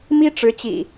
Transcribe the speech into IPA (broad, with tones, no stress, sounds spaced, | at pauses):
m i˦ ʈ͡ʂ ɻ̩˨˦ t͡ɕ ḭ˨˩